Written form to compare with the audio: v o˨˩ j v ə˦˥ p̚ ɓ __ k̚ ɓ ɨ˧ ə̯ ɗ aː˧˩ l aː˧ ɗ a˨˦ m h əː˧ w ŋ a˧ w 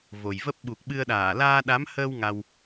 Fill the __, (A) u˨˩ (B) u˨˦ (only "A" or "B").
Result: A